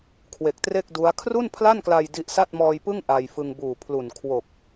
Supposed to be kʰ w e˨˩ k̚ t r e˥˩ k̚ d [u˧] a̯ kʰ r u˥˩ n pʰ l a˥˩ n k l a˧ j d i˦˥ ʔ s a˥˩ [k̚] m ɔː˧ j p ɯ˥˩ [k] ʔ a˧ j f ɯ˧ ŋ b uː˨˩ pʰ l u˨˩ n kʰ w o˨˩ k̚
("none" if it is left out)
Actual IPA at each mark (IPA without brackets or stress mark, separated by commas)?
u˦˥, t̚, ŋ